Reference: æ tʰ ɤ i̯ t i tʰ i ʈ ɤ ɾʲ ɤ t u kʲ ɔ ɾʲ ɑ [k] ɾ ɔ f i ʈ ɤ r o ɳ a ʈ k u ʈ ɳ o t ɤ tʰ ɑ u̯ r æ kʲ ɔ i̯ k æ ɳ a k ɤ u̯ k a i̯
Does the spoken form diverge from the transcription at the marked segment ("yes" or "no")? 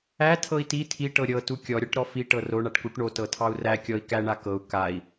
yes